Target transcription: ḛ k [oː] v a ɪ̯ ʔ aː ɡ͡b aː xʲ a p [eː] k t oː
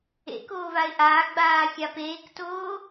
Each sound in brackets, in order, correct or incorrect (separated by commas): correct, correct